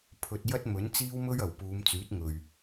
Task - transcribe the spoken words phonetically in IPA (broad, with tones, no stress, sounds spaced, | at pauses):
pʰ ɵ˧ t̚ j ɐ˥ t̚ m ɵ˨˥ n t͡s iː˥ w m ɵ˥ ɥ ɐ˨˩ w p uː˨˧ m t͡s yː˨˥ t̚ ŋ ɵ˨ ɥ